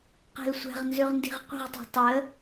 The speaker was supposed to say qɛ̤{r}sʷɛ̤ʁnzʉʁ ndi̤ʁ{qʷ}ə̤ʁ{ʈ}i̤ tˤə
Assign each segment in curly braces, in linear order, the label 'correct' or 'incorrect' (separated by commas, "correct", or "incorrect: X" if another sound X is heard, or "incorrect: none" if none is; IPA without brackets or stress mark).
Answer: incorrect: l, correct, incorrect: tˤ